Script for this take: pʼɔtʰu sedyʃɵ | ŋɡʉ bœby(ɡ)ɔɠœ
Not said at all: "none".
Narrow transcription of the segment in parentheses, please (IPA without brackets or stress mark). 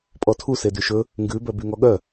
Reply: ŋ